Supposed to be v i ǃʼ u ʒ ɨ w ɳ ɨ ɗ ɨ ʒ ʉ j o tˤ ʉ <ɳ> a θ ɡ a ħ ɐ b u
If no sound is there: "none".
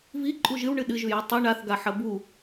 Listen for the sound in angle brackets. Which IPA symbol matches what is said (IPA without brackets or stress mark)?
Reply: ɳ